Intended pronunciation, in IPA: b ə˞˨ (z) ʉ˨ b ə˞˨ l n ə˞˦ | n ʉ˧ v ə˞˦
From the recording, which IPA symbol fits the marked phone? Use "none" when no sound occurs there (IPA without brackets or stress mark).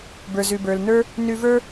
z